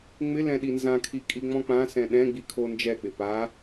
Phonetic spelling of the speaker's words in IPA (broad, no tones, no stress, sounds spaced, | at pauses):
ŋ͡m ɪ l ɛ̃ ɗ i n z ã kʰ i kʼ i ŋ͡m ɔ̃ k͡p ã s ɛ̃ ɗ ɛ̃ ɡ͡b i kʰ o n d͡ʒ ɛ k͡p ɪ p a